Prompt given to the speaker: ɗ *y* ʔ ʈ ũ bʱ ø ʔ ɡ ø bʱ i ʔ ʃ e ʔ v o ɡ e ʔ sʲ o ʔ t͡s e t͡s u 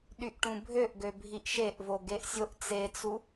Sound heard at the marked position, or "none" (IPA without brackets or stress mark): y